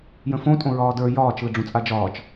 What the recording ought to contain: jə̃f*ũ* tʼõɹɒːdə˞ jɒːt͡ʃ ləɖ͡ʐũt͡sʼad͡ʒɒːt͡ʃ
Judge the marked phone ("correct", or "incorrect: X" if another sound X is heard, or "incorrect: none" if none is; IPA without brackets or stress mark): incorrect: õ